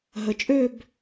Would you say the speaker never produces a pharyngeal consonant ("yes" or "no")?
yes